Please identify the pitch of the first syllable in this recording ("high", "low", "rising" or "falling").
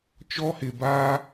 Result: high